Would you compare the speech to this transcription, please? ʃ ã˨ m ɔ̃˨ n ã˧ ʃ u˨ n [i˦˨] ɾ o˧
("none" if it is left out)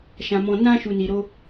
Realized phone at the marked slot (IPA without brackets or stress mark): i˨